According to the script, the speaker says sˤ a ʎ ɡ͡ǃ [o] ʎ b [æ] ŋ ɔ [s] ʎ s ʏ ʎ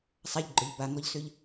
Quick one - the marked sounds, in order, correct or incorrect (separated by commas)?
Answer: incorrect, incorrect, incorrect